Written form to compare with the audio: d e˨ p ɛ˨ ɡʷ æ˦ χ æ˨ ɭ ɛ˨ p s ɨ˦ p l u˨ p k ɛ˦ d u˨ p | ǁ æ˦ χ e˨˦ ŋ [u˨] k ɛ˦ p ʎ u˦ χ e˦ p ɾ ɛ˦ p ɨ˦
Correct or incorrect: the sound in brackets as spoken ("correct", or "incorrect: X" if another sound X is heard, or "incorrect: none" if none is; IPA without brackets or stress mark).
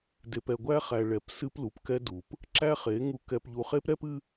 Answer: incorrect: u˦